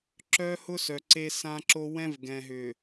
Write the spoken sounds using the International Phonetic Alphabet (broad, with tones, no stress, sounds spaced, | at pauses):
ǁ œ˦ h ʊ˦ s œ˨ ǀ e˦ s ã˦ ǁ o˦ w ɛ̃˦ v ɡ ɛ̃˨ ɦ ʏ˨